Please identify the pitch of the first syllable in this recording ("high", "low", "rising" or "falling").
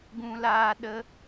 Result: high